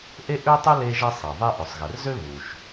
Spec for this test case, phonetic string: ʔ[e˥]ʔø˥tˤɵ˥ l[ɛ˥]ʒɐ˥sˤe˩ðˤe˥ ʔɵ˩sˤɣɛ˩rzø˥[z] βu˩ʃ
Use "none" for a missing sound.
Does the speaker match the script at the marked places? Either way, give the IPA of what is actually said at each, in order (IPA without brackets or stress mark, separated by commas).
e˥, e˥, none